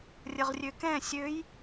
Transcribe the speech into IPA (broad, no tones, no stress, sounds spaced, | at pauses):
rʲ ə ʁ rʲ ø k ɛ̃ sʲ ø j